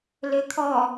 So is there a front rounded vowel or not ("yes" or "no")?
yes